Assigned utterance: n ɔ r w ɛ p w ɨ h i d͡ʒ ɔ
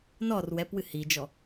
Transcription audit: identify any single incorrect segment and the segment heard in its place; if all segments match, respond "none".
none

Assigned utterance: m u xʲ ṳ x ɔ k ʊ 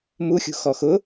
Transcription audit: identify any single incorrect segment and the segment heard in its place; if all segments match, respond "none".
k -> x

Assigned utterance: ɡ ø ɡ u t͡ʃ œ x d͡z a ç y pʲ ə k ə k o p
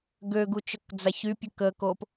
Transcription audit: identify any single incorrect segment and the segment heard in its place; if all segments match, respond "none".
x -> k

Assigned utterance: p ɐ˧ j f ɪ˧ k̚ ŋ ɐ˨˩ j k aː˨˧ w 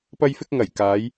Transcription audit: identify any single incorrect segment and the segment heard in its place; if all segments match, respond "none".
w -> j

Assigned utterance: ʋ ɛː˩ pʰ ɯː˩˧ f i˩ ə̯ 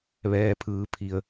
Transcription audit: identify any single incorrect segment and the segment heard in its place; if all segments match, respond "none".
f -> pʰ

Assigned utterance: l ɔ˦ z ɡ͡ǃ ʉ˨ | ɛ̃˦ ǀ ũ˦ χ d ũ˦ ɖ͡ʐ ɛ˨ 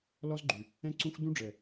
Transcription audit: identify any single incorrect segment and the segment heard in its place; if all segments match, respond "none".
χ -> xʷ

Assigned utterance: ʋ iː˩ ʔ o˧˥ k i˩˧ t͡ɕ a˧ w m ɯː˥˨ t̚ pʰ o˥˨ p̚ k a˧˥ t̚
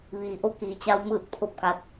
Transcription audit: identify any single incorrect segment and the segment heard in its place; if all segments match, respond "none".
none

